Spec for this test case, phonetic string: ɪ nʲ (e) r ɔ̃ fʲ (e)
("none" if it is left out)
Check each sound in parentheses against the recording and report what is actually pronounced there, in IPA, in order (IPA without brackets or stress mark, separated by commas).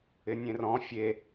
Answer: ẽ, e